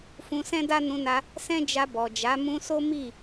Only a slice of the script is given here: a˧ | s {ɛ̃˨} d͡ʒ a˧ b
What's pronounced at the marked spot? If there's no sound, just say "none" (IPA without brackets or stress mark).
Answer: ɛ̃˦